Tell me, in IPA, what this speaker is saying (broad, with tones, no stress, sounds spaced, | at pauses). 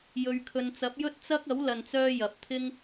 j ɵ˨ ɥ kʰ ɵ˨ n t͡s ɐ˨˥ p̚ j ɵ˥ t̚ t͡s ɐ˥ k̚ ɐ˨˥ w l ɐ˨ n t͡s œː˧ j ɐ˨ p̚ t̪ʰ ɪ˥ ŋ